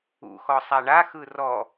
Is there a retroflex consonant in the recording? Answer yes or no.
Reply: yes